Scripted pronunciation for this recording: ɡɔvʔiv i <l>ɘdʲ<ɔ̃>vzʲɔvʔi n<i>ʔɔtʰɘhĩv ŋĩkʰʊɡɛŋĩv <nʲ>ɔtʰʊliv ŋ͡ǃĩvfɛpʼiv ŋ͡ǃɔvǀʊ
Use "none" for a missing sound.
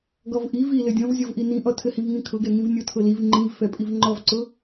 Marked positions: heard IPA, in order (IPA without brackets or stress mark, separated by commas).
l, ɔ̃, ĩ, nʲ